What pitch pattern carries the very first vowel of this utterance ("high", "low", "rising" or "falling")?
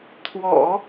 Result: low